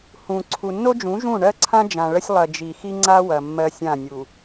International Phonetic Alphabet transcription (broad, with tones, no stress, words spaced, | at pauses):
hũ˨ ǀʰu˨nːo˦d͡ʒũ˨˦ ʒũ˦˨ ɳɜ˦ǀʰã˦ d͡ʒã˨ɭə˦sʲ lˠɐ˨ d͡ʒi˨xi˦ ŋ͡ǀa˦ wɐ˨ mːɜ˦sʲã˦˨nʲu˨